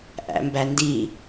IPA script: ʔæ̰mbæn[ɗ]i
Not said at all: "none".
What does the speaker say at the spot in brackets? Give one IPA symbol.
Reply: d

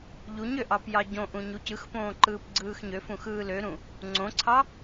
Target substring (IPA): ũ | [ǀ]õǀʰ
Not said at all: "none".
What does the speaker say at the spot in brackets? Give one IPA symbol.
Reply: ŋ͡ǀ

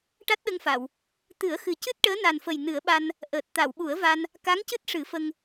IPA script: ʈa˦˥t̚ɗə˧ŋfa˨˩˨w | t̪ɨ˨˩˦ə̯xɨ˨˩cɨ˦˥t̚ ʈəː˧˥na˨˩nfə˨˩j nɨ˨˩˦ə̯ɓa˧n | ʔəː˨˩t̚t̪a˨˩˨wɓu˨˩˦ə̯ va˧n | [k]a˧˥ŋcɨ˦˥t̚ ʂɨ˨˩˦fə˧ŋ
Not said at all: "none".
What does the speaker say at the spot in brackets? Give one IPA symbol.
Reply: k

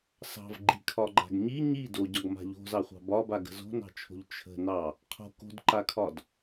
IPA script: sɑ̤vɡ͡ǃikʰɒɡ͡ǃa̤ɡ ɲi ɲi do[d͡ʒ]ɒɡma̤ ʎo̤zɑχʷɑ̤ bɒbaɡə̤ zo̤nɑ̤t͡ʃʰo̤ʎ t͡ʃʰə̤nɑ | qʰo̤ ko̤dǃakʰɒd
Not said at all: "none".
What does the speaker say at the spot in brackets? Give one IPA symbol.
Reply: ɟ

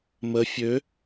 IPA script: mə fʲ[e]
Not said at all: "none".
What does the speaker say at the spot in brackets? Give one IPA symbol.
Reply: ø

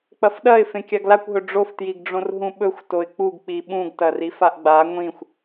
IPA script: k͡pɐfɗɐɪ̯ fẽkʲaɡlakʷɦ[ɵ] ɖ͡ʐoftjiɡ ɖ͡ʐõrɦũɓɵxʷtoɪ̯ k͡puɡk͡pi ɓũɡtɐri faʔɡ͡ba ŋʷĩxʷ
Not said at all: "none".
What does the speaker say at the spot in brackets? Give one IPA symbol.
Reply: ɵ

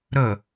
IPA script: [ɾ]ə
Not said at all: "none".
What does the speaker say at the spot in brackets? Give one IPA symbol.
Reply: ɾ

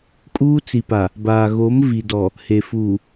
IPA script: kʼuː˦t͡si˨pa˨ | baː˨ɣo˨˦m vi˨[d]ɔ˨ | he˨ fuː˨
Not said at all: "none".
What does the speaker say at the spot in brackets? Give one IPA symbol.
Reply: d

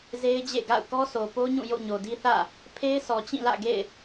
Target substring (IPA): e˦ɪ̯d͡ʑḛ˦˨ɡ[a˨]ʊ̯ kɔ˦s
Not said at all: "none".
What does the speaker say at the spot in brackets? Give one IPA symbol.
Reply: a̰˦˨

